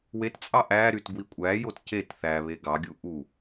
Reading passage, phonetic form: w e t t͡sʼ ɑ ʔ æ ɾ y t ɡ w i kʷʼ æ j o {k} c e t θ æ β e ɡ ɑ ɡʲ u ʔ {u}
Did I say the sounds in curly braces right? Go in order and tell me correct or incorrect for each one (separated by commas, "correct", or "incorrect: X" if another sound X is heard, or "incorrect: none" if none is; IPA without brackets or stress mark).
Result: incorrect: t, correct